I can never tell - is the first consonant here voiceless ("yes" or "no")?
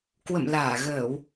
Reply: yes